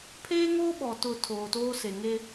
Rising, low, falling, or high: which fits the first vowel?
high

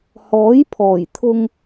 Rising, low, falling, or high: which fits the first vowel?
rising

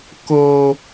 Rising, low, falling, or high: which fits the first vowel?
high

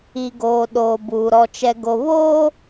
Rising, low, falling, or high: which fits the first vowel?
low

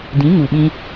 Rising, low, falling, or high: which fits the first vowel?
rising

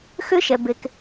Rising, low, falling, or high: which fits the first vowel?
high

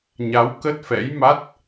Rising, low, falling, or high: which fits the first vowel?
rising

